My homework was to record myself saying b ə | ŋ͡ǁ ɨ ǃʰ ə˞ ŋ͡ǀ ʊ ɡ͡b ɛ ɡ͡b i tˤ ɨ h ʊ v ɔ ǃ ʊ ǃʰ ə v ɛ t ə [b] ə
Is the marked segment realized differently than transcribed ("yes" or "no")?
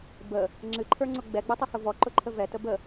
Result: no